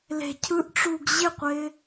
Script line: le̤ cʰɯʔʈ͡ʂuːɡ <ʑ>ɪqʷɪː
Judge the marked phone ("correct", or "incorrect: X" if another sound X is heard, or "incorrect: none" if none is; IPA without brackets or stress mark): correct